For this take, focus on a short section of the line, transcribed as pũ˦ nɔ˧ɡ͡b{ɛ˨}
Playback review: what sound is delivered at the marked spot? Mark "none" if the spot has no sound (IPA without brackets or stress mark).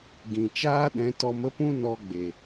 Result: e˨